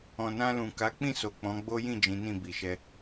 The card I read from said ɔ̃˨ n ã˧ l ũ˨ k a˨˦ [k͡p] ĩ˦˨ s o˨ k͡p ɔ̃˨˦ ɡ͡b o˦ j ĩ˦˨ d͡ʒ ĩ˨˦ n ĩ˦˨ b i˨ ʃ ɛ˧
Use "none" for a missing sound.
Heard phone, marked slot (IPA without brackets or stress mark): k͡p